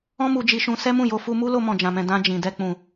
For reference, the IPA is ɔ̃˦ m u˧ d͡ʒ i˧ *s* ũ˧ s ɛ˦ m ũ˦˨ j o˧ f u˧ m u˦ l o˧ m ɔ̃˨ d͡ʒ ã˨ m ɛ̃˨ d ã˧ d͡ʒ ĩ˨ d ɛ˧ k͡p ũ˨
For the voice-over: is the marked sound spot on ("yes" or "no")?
no